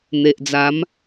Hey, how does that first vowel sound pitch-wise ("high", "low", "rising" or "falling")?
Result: low